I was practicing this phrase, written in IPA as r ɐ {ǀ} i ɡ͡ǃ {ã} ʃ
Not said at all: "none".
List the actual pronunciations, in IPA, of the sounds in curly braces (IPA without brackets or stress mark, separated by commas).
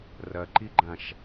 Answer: ǃ, ã